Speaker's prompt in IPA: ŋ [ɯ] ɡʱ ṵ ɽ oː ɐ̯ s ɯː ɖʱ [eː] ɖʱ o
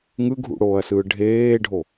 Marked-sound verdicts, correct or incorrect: correct, correct

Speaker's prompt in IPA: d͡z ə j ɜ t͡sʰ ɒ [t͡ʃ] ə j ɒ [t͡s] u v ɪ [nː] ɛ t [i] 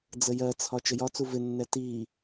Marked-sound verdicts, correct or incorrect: correct, correct, correct, correct

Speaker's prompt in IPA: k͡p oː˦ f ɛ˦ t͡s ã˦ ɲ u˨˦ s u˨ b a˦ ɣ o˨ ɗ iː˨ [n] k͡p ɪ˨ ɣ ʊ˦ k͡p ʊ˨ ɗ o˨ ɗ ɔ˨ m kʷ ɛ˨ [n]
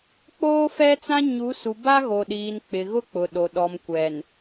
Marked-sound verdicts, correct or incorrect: correct, correct

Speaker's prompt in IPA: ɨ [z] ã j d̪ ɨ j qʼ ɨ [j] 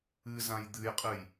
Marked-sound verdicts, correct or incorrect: correct, correct

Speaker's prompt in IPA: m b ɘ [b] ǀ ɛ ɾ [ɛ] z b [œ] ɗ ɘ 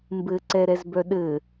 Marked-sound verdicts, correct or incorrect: incorrect: none, correct, correct

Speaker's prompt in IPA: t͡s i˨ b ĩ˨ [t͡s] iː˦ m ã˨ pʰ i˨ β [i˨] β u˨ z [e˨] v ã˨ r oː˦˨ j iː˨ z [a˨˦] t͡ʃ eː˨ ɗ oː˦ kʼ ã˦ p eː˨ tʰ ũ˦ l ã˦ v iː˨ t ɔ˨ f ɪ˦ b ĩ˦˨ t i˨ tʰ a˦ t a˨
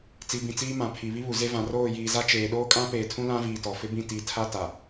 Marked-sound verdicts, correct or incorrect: correct, incorrect: i˦, incorrect: e˦, incorrect: a˦

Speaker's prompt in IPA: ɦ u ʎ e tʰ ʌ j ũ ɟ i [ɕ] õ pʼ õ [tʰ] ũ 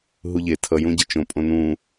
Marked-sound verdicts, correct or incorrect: incorrect: t͡ʃ, incorrect: n

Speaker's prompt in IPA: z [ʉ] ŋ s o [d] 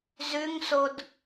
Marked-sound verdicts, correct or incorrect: correct, correct

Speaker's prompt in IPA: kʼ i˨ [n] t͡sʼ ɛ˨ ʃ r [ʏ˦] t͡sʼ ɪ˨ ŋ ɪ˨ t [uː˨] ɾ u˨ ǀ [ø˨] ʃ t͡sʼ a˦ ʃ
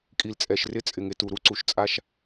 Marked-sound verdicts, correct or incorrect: incorrect: l, incorrect: ɪ˦, incorrect: u˨, incorrect: u˨

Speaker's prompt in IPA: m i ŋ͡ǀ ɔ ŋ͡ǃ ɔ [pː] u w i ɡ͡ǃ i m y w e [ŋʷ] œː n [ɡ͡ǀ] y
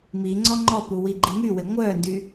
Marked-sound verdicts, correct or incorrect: incorrect: p, correct, incorrect: d

